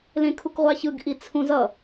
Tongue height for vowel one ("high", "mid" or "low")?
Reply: mid